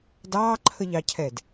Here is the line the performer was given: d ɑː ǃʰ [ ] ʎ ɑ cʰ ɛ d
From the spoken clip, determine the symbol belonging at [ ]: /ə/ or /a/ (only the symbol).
ə